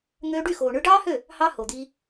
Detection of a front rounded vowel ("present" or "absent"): present